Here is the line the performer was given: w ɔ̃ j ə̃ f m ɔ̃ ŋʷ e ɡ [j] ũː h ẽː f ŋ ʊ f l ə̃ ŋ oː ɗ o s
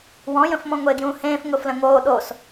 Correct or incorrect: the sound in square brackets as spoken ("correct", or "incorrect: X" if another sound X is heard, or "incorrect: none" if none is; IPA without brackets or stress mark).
correct